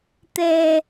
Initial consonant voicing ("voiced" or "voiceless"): voiceless